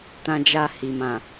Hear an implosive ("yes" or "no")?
no